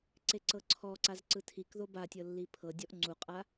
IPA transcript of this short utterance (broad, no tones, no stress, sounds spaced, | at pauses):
ǀ e ǀ ɤ ǀʰ ɔ ǀ a z ǀ ɯ tʰ i k ð o b a tʲ ɤ lː i pʰ ɤ dʲ ɔ ʔ ŋ͡ǀ u qʼ a